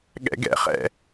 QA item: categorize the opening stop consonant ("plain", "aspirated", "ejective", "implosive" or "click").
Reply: implosive